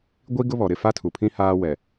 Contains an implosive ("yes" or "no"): no